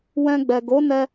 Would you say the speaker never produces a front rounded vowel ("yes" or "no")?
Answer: yes